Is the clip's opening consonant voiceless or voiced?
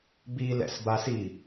voiced